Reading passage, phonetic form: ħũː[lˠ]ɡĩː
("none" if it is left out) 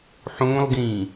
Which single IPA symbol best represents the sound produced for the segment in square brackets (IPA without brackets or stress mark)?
lˠ